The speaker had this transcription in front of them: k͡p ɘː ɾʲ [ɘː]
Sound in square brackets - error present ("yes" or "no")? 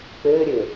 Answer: no